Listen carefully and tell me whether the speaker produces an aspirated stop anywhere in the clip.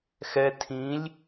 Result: yes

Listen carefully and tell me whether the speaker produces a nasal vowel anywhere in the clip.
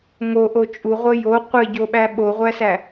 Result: no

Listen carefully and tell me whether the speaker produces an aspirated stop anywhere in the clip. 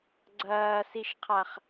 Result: yes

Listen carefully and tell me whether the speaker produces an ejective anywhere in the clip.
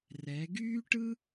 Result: no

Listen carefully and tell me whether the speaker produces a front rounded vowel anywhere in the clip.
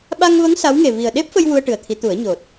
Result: no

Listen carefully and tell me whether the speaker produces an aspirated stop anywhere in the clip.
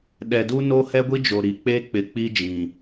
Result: no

